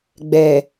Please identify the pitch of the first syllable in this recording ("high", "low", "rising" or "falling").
low